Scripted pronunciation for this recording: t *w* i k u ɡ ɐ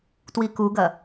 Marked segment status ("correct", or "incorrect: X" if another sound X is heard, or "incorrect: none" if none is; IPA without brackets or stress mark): correct